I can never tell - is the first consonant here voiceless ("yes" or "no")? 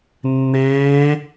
no